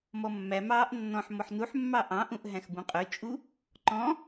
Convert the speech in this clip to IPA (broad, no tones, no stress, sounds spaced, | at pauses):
m ɔ mː æ m ɑː ʔ nː ɔ̃ ħ m ɔ ħ n u ħ mː ɑ ʔ ɑ̃ ʔ ũ ʔ ɦ æ̃ x b ũ qʼ ø t͡ʃʼ u | ǃ ɔ̃